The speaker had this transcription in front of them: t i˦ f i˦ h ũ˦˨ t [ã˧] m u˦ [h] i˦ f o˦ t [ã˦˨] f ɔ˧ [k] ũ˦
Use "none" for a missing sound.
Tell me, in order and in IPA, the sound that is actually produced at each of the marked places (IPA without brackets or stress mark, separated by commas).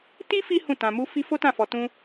ã˧, f, ã˦˨, t